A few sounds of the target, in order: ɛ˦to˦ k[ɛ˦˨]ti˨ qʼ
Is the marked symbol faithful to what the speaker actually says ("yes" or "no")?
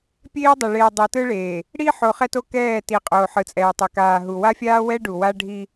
no